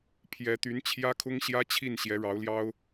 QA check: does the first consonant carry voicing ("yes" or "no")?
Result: no